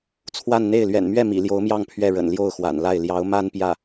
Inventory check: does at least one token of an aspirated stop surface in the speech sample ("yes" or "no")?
yes